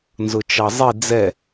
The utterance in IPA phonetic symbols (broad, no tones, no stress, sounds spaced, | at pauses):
n z ʊ t͡ʃ ɑ zˤ i d͡z ɛ